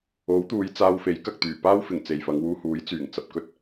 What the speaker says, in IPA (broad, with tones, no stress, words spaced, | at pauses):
o˨˥wt̪uː˨˧j t͡saː˧wfe˨˥j kɐ˨k̚t̪yː˨˩paː˥wfɪ˨˩ŋ t͡se˨jfɐ˨˧ŋwuː˧huː˨˥j t͡syː˨˩ŋt͡sɐ˨p̚kɵ˥t̚